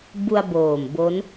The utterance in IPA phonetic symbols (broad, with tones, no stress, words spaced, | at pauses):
bu˧a̯boː˨˩m bo˦˥n